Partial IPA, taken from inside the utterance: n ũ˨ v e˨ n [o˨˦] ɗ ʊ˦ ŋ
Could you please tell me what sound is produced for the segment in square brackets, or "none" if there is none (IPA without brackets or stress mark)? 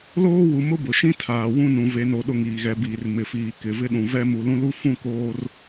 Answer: o˨